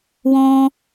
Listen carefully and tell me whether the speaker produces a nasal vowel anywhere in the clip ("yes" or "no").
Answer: yes